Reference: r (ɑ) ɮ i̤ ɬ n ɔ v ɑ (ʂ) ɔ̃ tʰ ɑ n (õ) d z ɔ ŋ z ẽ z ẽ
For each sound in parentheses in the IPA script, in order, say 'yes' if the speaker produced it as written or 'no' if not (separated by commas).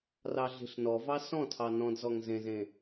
yes, no, no